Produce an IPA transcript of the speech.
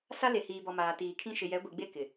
s a˦ l e˨ h iː˨ b ɔ˨ m aː˨ t iː˨ kʰ ĩ˦ ʃ ɪ˨ j ɛ˨˦ ɡʷ i˨ ɡ͡b e˦ k ɪ˨

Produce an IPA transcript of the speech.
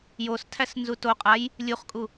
j o s tʰ æ s n z u t o qʼ a j | lʲ u χ kʼ u

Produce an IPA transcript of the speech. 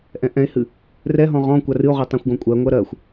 ʔ ɛ̃ ʔ ɛ̃ e̯ h ɨ | r ɛ ɦ ɔ̃ ʁ ɔ̃ kʷ a r ɨ o̯ ʁ œ tˤ ã xʷ ɡ ɔ̃ kʷʼ ɜ ŋʷ ɜ ɾ ɜ xʷ

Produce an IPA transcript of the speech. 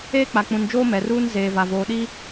eː˦ k͡p a˨ k͡p ũ˨ n d͡ʒ oː˦ m ɛ˨ r uː˦ n z eː˨ v a˨ v oː˨ ɗ i˦

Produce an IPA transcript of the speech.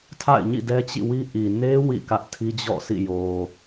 tʰ a̰˦˨ ɪ̯ ɲ ḭ˦˨ d ɛ˦ t͡ɕ ḭ˦˨ w i˦ ʔ i˨ n e˦ w ḭ˦˨ k ä˦ ʔ tʰ i˦ d͡ʑ ɔ̰˦˨ s ḭ˦˨ j o˨

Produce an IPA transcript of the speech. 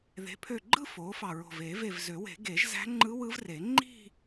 ð e̤˩˥ pʰ ø˧˩ ɡ͡ǃ ɯ˥˧ f oː˩˥ f ɑ˧˩ ɹ o̤˧˩ v e˨˩˦ v e˧˩ v z ø˨˩˦ w e̤˨˩˦ ɡ e˨˩˦ ʒ z æ̤˧˥ ŋ͡ǃ ɯ˧˥ w ɯ˧˥ v r e˨˩˦ ŋ͡ǃ i̤˥˧

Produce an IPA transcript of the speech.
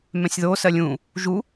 m ɛ̃ sʲ ð o s ɜ lʲ ũ | ʒ u

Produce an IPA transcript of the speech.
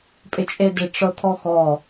pʼ ɪ t͡ʃʼ e d ɪ ʈ͡ʂ ɤ t̪ʰ ɔ x ɔ

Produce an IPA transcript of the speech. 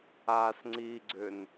a s ŋ͡ǀ i ɡ͡ǀ ʏ n

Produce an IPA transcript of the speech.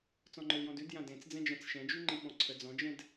t͡s ɔ̃ ŋ͡ǃ ə˞ l j ɔ̃ d ʉ d j ã d ẽ t͡s d͡z ɛ̃ d͡ʒ ã t͡s ʃ ɛ̃ d͡ʒ ʉ ŋ͡ǃ i ɓ ɔ̃ ǀʰ ə d͡z ɔ̃ d͡ʒ ɛ̃ d

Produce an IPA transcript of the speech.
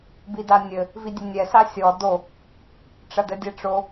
b i d a nʲ ɘ | v i dʲ ɘ nʲ ɛ s a sʲ ɔ d o | ʈ͡ʂ ɐ d ɘ dʲ ɛ ʈ͡ʂ o

